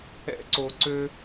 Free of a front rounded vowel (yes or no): no